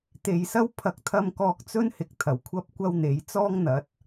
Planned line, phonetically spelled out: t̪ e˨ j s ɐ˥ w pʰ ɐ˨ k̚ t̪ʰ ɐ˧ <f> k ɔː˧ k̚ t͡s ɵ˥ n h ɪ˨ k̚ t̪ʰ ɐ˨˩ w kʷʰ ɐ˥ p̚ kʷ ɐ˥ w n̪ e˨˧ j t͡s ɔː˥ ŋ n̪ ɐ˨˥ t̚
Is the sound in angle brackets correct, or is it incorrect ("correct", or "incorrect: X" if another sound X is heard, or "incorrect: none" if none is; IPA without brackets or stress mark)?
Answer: incorrect: m